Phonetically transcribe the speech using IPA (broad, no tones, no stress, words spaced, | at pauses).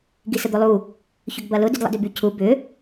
ɡisəd̪olˠu | çʏɡbɐlʊ dydlˠə̰dʏby cʰu bʏ